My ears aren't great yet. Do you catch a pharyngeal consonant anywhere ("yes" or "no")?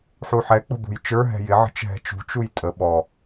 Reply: yes